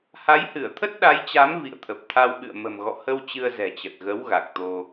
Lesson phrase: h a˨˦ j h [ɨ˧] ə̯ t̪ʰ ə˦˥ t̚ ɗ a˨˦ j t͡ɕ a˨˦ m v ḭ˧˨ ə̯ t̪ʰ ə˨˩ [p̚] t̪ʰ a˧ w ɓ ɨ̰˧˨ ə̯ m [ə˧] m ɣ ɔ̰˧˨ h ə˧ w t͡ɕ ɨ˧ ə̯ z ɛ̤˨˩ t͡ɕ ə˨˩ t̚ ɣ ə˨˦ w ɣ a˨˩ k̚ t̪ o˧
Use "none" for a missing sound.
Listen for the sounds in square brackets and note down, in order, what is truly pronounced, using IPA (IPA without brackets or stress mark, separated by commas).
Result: ɨ˧˩, p̚, ə̤˨˩